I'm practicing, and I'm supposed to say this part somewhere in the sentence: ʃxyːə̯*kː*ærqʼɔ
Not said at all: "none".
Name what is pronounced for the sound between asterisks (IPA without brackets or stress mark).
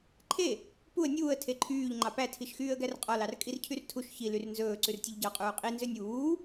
ɡ